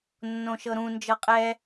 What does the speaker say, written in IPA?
nː õ ʃ ɤ ɾ ũ n d͡ʒ ɤ qʼ ɛ

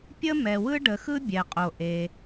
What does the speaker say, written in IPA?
pʲ ə˥ m ɛ˩ w ɯ˥ ɖ ə˩ x ɯ˥ bʲ ɛ˩ qʼ o˩ ʔ e˩

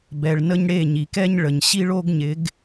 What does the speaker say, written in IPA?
b ɛ˨ ɭ n ə˧ ɲ ɽ e˦˨ ɲ i˨ k ɛ˦ ɲ ɭ ə˨ ɲ ɕ i˦ ɭ o˦ ɡ ɲ ɪ˨˦ ɡ

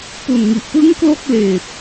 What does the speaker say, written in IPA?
p u˨˩ n ŋ i˨˩ ʔ p ɯ˦˥ ŋ k l o˥˩ k̚ l eː˨˩ p̚

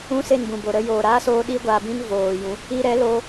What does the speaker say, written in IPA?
ũ˦ s e˦˨ n b ũ˨ b o˨ ɾ ə˧ j oː˨ ɾ aː˦ s oː˧ ɗ i˦ ɡʷ aː˧ b ĩ˦ n v oː˨ j ũ˨˦ | i˧ ɾ ɛ˨˦ l oː˧

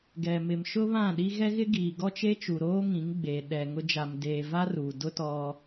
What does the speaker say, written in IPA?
ɡ ɛ˨ m ɪ˨ m ʃ ʊ˦ β ã˦˨ ɗ i˦ ɣ ɛ˦ ɣ ɪ˦ ɡ iː˨ ɡ ɔ˦ t͡ʃ e˦ t͡ʃ u˨ ɾ oː˦ ŋ ĩ˨˦ ŋ ɡ͡b eː˨ ɗ ɛ˨ ŋ ʊ˦ d͡ʒ a˨ m d eː˨ v a˦ r uː˨ d ʊ˦ t ɔ˦

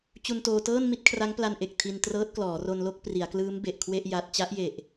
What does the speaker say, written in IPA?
t͡ɕ u˧ n t oː˧ t ɤː˥˩ n m i˥˩ t̚ kʰ r a˦˥ ŋ p l a˧ n ʔ e˨˩ k̚ tʰ i˧ n t r ɤː˦˥ t̚ k l ɔː˩˦ r o˧ n l o˥˩ k̚ p r i˩˦ a̯ k l ɯː˦˥ m b e˨˩ ʔ kʰ w e˥˩ ʔ j a˦˥ t̚ t͡ɕ a˦˥ ʔ j e˨˩ ʔ

